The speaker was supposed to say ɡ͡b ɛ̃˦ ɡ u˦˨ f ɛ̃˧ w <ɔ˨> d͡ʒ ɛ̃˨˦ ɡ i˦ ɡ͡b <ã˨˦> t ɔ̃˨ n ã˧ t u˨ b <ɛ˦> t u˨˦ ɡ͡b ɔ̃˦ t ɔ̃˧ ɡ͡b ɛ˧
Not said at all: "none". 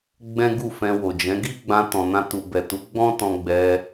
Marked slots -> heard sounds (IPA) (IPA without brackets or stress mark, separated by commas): o˨, ã˧, ɛ˨